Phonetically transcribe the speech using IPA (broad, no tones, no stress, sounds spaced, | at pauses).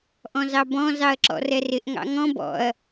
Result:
ʔ ɔ̃ z ɑ b ɔ̃ z ɑ ɐ̯ ǁ ɔ̰ r ɛ r ɪ ʔ ŋ ɑ̰ ŋ ɔ̃ b ɔ̰ ɐ̯